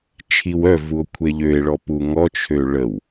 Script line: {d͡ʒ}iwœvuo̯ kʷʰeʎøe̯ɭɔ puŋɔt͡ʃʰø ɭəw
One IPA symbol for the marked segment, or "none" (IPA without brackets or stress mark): t͡ʃʰ